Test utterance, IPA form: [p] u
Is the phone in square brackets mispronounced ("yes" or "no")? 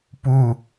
no